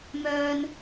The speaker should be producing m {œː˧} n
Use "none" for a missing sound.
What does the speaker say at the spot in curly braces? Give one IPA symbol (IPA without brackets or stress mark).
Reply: œː˧